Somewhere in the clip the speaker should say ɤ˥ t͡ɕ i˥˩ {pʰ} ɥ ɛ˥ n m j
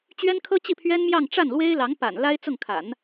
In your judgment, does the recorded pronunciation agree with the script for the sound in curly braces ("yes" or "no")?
yes